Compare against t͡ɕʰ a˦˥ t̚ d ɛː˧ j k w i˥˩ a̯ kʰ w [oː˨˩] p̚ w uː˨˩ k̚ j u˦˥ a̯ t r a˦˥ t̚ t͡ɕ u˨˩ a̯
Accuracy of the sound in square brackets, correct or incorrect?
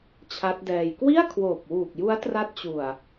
correct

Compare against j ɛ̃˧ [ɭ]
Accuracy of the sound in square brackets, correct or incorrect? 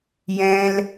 incorrect: l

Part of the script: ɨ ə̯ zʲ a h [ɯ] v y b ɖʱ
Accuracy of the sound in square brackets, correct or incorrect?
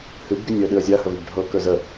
incorrect: ə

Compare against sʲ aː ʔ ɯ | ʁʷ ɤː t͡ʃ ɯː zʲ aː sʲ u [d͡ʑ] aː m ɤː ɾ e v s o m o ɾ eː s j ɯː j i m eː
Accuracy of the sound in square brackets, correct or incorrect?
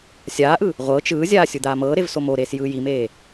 incorrect: d̪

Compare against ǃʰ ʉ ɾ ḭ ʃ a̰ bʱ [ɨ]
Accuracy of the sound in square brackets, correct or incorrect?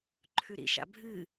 correct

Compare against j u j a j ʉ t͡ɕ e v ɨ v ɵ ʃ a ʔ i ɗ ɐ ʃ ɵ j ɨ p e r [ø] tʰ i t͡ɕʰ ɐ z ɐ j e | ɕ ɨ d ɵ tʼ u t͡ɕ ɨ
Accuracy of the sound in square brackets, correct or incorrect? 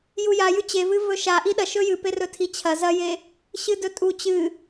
incorrect: ɵ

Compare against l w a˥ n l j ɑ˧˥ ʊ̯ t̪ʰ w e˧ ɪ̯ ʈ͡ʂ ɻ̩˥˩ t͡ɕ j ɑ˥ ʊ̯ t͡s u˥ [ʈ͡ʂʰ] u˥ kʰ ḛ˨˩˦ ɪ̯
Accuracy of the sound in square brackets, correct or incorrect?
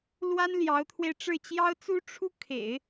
correct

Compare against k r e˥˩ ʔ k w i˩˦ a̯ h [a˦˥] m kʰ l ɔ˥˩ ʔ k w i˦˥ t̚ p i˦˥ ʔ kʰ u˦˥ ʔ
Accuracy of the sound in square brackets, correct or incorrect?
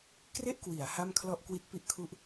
incorrect: a˥˩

